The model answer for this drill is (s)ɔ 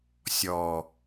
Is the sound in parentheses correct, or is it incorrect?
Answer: incorrect